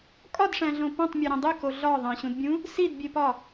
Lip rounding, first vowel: rounded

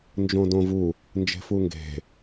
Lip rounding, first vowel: rounded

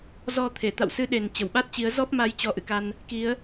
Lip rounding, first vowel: rounded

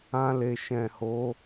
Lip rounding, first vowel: unrounded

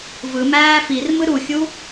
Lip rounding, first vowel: unrounded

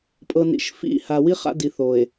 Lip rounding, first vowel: unrounded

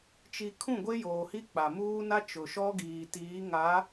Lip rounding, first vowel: unrounded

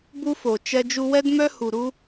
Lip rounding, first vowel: rounded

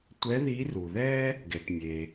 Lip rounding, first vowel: unrounded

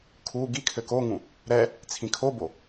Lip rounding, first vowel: rounded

